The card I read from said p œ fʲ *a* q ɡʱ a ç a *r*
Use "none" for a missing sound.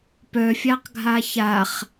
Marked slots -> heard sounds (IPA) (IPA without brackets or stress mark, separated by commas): a, χ